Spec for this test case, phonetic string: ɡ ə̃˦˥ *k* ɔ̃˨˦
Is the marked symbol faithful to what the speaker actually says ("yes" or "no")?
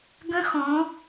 no